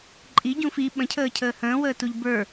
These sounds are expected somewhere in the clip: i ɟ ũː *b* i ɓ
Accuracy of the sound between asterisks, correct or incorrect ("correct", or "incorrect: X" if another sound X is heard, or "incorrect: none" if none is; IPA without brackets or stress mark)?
incorrect: f